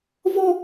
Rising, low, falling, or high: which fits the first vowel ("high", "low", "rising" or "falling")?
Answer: high